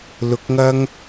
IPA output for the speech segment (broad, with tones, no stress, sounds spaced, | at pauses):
l ʊ˨˥ k̚ ŋ ɐ˥ ŋ